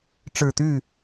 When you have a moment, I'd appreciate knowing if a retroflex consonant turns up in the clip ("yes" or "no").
yes